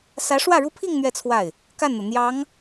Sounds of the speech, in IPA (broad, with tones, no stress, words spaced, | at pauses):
sä˧˥ʂwä˥˩ɻu˥pʰi˥˧ŋ n̪ɥɛ˥˧t͡sʰwa˥˩ɪ̯ | ka˥˩nn̪ɤ˩ n̪jɑ˧˥ŋ